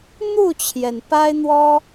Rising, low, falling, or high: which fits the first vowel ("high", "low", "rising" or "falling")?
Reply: falling